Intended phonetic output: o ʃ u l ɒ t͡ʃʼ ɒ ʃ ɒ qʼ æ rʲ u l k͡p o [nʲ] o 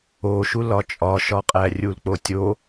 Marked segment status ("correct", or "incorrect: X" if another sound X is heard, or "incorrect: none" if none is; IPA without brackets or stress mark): incorrect: tʲ